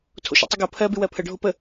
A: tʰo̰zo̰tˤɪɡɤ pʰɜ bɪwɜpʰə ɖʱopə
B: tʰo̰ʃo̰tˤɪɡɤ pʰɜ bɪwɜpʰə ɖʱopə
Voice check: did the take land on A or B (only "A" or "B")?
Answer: B